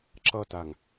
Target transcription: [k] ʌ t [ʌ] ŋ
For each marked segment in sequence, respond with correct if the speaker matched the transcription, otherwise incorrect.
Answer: incorrect: ǁ, incorrect: a

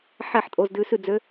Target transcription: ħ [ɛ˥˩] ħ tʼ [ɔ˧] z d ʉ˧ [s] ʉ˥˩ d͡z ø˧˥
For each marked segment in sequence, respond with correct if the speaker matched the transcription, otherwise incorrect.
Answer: correct, incorrect: o˧, correct

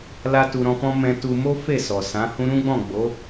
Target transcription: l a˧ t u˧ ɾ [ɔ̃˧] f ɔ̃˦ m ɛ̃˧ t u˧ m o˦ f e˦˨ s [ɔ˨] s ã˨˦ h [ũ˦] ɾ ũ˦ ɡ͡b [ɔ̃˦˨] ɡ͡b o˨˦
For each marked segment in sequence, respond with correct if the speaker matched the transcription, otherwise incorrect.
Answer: correct, correct, correct, correct

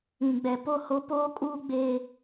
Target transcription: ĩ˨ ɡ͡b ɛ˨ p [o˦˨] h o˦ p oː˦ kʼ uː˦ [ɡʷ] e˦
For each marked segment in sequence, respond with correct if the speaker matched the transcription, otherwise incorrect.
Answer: correct, incorrect: ɡ͡b

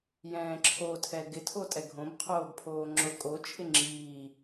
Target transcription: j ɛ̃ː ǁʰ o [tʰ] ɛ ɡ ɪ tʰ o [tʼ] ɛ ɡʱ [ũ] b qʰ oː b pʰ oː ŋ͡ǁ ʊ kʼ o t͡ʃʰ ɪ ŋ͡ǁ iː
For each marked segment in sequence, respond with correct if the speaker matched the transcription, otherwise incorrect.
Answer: correct, correct, incorrect: õ

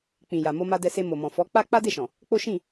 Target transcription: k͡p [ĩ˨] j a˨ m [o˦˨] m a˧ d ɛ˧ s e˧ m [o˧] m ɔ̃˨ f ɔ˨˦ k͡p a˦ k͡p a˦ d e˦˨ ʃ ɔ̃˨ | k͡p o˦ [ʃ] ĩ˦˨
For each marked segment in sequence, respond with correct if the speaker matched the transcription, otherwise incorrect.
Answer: correct, incorrect: o˧, incorrect: o˨, correct

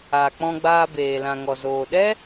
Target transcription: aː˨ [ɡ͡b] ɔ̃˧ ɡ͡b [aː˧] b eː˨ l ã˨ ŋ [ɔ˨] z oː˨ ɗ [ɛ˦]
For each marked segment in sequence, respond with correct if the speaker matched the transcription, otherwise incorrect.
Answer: incorrect: k͡p, correct, correct, correct

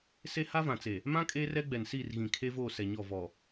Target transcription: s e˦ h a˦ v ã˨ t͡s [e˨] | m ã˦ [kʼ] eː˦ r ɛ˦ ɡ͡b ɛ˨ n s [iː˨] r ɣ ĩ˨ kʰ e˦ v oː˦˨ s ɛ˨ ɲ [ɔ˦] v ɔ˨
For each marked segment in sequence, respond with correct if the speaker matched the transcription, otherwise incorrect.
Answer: correct, correct, incorrect: iː˦˨, incorrect: ɔ˦˨

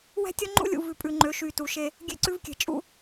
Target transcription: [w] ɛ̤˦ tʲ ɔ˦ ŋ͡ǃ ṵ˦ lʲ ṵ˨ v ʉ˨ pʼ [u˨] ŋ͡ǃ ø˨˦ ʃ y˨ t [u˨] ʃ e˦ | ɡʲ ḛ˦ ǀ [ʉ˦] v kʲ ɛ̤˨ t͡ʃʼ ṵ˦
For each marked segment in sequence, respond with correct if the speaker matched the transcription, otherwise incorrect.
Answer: correct, incorrect: ʉ˨, correct, correct

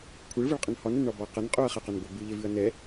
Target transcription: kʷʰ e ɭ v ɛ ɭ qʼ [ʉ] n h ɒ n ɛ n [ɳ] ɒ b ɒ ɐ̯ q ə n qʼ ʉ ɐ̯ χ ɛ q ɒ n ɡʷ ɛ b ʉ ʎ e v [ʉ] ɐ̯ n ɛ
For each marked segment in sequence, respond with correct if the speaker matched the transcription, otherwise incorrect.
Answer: incorrect: ə, correct, correct

